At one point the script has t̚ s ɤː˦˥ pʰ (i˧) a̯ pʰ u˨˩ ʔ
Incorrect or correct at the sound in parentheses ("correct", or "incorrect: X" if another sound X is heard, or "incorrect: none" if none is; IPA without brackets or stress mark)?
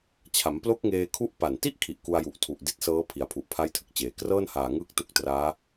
incorrect: i˩˦